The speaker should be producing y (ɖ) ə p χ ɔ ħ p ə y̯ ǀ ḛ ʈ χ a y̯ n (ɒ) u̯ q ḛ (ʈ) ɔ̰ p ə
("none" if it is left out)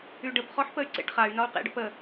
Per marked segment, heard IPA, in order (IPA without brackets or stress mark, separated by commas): ɖ, ɒ, ɖ